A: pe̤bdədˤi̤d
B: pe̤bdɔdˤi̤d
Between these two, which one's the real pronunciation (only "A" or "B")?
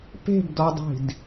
B